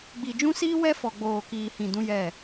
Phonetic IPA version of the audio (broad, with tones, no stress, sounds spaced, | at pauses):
ɡ͡b i˨ d͡ʒ ũ˦ s iː˦ w ɛ˦ f ɔ˨ ɡ͡b oː˨ k iː˨ h ĩ˨ d ũ˦ j ɛ˦˨